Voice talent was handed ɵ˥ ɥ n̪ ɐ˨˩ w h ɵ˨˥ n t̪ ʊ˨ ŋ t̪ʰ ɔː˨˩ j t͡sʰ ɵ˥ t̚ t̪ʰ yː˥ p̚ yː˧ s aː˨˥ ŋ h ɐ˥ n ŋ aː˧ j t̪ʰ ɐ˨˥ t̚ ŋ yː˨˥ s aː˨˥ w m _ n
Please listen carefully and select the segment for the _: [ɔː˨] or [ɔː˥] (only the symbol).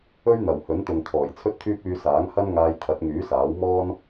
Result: ɔː˥